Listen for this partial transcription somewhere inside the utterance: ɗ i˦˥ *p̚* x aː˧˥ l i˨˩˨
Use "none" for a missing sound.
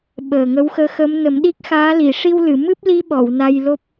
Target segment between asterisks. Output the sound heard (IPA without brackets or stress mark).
k̚